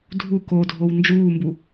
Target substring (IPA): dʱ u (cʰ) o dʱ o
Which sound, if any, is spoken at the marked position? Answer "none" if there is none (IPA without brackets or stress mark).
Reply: k